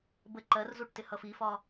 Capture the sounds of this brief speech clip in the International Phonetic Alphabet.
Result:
bə ǃɜrzuʈ tɪhʌfifɒ

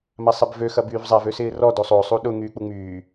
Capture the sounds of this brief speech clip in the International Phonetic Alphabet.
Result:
masˤɛbvø xɐbyːvzˤav øsɪːrɔ dosˤo sˤuɗʊ ŋyːk͡puŋ͡myː

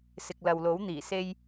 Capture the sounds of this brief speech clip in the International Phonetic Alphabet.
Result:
sɪ˨k̚lɐ˨wlo˨˥w n̪iː˨˩se˥j

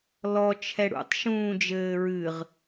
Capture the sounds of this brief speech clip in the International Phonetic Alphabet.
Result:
lɔ t͡ʃʰɛɽṵtˤ ʃũːd͡ʒɘːɹɨʁ

